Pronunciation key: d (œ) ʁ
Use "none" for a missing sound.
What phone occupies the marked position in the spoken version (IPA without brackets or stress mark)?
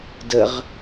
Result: ə